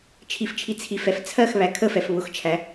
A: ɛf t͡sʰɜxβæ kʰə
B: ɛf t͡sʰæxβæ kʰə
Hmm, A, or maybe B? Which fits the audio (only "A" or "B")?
A